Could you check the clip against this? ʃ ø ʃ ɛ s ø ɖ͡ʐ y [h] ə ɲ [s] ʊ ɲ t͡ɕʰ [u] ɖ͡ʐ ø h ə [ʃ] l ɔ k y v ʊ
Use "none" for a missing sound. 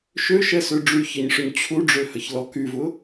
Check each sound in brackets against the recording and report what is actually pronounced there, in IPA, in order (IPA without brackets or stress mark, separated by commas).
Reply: ç, ʂ, u, ç